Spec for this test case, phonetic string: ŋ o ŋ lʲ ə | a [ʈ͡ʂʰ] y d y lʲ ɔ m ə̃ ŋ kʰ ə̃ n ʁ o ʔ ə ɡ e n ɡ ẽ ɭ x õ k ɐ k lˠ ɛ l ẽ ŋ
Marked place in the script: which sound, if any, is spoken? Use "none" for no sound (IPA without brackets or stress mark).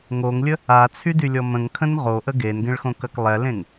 t͡sʰ